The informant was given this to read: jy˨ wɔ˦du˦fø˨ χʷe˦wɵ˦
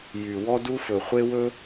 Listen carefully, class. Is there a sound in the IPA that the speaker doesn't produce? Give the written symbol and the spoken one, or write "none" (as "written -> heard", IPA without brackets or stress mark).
ø˨ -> ɵ˨